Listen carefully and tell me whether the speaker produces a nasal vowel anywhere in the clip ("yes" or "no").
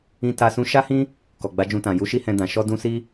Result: yes